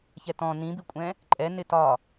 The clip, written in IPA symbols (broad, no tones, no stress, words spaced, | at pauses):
çɛtɔ̃ nĩbikʷʼɛ̃ | ǃʼɛ nɪtɒ